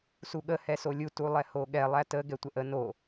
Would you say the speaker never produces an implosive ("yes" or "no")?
no